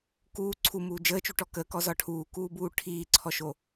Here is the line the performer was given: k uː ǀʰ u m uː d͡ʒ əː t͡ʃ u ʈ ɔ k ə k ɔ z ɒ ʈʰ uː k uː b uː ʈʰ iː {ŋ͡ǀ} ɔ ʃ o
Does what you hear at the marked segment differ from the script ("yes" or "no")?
yes